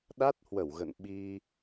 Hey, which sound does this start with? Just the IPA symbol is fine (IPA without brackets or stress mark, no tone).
ɗ